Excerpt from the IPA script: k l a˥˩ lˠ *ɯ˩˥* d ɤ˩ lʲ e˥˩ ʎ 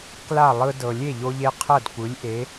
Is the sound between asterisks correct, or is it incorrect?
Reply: incorrect